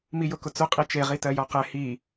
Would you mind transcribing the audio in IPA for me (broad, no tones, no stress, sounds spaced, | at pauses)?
m i j ʊ k ʊ t͡s ʊ qʼ i t͡ʃ e ʁ i t ɜ j ɔ q ɛ h i